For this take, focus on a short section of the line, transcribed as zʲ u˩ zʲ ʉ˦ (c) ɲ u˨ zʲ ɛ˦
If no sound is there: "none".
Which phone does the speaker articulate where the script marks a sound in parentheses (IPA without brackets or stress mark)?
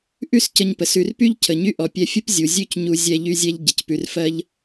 c